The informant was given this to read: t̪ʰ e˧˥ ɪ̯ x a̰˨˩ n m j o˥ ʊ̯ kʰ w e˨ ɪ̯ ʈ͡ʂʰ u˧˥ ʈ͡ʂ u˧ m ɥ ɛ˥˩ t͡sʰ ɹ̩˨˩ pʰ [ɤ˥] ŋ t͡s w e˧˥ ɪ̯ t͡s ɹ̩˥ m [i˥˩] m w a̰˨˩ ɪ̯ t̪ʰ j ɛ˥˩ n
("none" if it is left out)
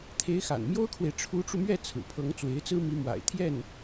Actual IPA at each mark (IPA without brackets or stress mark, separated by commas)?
ɤ˧˥, i˧˥